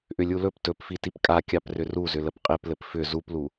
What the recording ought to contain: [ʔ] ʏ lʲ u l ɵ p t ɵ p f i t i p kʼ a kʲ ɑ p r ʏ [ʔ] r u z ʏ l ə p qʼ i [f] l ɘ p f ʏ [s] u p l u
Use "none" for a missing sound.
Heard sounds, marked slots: ʔ, none, p, z

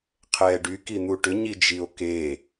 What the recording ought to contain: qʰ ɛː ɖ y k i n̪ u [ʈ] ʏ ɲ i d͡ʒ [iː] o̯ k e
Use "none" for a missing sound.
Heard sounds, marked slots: ʈ, i

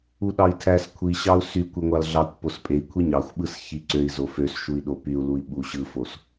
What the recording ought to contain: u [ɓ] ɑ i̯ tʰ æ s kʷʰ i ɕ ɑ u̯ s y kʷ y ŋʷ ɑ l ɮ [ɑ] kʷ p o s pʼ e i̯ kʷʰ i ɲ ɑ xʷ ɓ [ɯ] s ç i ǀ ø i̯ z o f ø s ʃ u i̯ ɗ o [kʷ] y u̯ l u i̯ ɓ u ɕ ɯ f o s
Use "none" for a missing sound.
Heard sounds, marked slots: ɗ, ɑ, ɯ, p

